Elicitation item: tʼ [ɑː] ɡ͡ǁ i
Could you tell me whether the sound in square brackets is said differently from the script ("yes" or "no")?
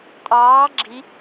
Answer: no